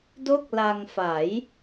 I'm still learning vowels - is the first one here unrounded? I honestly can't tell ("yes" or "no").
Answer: no